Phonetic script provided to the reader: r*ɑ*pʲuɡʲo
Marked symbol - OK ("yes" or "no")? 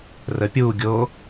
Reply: no